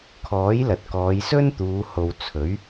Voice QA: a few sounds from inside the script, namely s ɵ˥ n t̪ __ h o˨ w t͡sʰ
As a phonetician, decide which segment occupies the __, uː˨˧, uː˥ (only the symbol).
uː˨˧